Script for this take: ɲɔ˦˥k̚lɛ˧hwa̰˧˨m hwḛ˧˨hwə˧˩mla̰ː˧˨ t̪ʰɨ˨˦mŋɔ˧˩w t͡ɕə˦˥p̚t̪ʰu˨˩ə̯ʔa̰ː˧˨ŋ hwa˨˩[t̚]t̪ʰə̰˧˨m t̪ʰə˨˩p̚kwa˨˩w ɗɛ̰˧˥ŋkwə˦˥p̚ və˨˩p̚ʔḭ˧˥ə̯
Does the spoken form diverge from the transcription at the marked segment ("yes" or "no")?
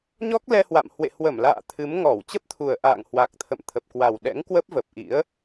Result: yes